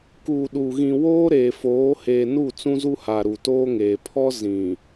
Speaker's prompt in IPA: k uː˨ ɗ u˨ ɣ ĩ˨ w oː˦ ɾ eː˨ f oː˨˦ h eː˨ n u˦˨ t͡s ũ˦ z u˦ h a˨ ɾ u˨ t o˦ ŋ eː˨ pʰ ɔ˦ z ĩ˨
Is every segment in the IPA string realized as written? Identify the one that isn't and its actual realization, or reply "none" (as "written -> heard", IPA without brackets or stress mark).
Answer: o˦ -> oː˦